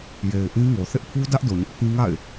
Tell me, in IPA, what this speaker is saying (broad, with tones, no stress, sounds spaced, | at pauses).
j e˨ ɪ̯ ʔ ĩ˦ ŋ o˨ θ ɪ˦ ʔ pʰ u˦ d ä˦ ʔ d o˨ ɲ ɪ˦ ʔ pʰ ĩ˦ ŋ a̰˦˨ ɪ̯